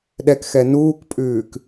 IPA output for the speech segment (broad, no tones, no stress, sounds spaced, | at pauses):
ɗ ɛ k x ɛ n uː k pʼ ʉː k